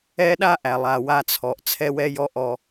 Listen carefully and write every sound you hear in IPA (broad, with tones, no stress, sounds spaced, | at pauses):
ɛ˦ ɗ a˦ ʔ æ˨ lˠ a˨ w a˧ t͡sʰ ɔ˨ ʔ t͡sʰ ɛ˦ w ɛ˦ j ɔ˦ ʔ ɔ˧